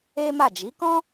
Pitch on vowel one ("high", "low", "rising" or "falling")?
high